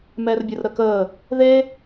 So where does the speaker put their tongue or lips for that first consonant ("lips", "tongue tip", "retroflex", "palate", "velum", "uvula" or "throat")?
lips